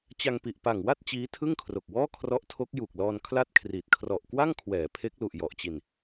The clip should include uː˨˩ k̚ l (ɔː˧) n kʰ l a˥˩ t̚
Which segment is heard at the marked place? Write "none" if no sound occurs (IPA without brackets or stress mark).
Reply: ɔː˧